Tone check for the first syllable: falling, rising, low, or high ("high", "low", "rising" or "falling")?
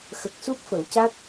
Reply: low